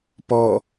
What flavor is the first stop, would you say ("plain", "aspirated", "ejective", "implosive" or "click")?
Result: plain